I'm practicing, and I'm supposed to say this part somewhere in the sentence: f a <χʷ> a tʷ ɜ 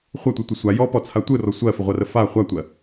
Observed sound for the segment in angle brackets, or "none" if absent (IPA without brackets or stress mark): χʷ